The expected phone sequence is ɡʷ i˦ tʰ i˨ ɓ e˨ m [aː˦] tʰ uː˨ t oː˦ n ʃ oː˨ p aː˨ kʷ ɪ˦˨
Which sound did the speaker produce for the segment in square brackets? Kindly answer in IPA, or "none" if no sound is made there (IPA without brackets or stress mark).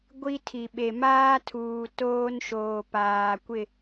aː˦